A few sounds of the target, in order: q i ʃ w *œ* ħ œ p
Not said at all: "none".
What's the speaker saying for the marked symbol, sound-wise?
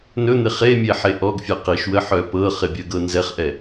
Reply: ə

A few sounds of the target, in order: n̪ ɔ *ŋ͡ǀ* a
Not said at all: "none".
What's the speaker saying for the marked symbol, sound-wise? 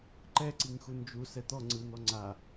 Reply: ŋ͡ǀ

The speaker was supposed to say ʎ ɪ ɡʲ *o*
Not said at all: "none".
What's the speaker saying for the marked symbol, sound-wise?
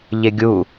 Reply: u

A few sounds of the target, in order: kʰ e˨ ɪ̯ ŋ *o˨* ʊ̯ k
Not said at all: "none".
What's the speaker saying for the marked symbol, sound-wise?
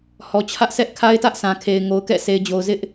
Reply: o˨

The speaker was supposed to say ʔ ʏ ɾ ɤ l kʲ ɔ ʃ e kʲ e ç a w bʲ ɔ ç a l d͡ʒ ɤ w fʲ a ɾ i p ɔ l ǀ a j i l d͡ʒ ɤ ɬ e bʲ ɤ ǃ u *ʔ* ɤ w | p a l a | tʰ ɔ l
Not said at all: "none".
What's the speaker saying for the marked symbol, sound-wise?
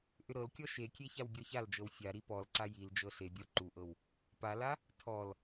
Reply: ʔ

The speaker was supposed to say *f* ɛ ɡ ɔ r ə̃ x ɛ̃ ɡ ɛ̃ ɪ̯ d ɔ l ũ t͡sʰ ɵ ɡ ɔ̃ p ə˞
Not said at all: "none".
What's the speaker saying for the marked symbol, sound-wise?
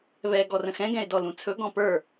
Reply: β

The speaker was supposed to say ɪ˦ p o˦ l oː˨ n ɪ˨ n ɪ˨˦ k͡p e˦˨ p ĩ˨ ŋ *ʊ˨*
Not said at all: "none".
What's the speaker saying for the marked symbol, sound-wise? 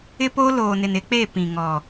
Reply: ɔ˨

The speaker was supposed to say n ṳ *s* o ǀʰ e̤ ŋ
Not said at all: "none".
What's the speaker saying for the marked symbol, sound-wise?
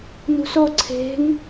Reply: s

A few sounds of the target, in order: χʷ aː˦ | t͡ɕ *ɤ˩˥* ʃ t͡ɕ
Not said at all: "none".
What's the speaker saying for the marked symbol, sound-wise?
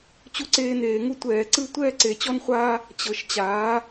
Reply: ɤ˩˥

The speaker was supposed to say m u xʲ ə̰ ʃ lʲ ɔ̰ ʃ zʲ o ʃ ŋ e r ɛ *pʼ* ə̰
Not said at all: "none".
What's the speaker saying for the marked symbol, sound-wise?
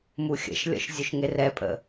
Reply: pʼ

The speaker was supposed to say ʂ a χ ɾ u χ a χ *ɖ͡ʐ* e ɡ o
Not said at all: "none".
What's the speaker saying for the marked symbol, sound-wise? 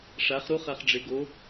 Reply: ɖ͡ʐ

